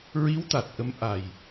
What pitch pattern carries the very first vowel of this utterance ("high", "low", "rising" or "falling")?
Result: rising